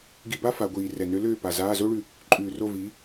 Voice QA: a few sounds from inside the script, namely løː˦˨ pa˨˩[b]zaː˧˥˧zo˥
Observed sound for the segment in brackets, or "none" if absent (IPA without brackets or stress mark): none